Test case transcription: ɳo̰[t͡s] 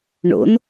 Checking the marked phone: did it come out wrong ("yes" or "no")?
yes